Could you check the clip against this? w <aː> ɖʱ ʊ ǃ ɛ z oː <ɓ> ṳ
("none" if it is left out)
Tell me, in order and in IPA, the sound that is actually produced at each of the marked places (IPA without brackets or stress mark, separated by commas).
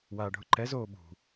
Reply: aː, ɓ